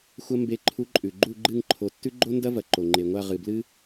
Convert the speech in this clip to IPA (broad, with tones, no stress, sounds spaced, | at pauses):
xʷ ɐ˥ m b e˧˥ ǃʰ u˧˥ ǃʼ ʉ˩ ɡ͡ǃ u˦˨ ɡ͡ǃ ɨ˦˨ ŋ ǃʰ o˩˧ tː ʉ˥ ɡ͡ǃ o˥ n d ɐ˥ v ɐ˩ ǃ o˩ ŋ͡ǃ e˩ ŋʷ a˦˨ ʁ ɨ˩ b l ɨ˥